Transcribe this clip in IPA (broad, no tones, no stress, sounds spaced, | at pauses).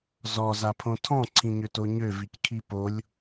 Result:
z ɔ z a pʰ õ tʰ ɔ̃ ǀʰ ĩ ɲ ø t o ɲ ø v i c kʰ i p o lʲ